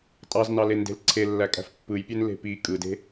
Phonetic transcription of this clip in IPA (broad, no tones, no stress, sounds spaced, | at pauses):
tʼ ɑ z n ɑ l e n d e̤ l ǀʰ e lː æ kʼ æ̤ f pː ɯ j pʲ ø n l e̤ p i kʼ ɯ d e̤